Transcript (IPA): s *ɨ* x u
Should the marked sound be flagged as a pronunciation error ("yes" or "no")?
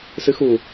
no